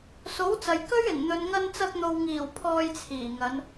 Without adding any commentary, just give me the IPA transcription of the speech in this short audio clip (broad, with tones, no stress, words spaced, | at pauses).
so˨˥wt͡sɐ˨j kɵ˥ɥɪ˨˩ŋ n̪ɵ˨nŋɐ˧nt͡sɐ˧k̚n̪o˨w ŋiː˨˩w pʰɔː˧jt͡sʰiː˨˩ŋɐ˨˧n